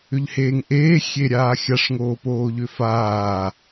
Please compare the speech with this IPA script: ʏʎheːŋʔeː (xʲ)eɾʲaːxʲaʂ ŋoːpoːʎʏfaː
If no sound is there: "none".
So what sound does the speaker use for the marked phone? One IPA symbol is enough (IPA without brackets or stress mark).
xʲ